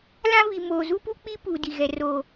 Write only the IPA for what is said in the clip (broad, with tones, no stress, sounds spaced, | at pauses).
l ã˦ v i˨ m oː˨ z u˦ p u˦ k͡p i˦ p u˨ d i˨ ɣ ɛ˨ r o˨